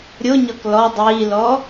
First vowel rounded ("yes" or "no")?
yes